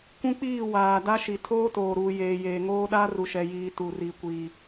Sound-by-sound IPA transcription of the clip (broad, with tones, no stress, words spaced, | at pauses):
kʷũ˦k͡piː˦˨ waː˨ da˦ʃi˨ tʰoː˦toː˨ɾuː˨ jeː˨jeː˨ŋoː˦ɗa˦ ru˨ʃɛ˨ jiː˨ tu˨ri˨ kʷiː˨